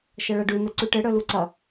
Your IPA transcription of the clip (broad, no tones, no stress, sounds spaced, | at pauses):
ʃ ɐ ɭ ɐ ɖ ʉ n ə ǀ ʉ ʈ ɘ ɽ œ l u ǀ ɐ